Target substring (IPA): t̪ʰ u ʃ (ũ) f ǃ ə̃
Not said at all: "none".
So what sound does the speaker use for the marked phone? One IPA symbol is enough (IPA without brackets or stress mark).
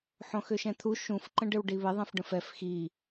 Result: ũ